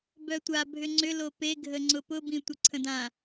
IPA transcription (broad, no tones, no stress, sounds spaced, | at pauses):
b œ tʷ a bʱ ʏ ŋ͡ǀ ʏ l o p e ɡʱ ə ŋ͡ǀ ʊ p ʊ b ĩ tʷ ə ǀʰ ə̃ d ã